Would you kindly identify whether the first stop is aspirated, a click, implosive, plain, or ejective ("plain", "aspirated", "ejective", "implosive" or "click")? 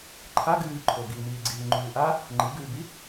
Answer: click